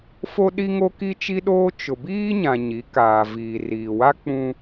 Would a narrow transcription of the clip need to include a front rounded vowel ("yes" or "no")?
no